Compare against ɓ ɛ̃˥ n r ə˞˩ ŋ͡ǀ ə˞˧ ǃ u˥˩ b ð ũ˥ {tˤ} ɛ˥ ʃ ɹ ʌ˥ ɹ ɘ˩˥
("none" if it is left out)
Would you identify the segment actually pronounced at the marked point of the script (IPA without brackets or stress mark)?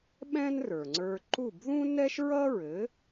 n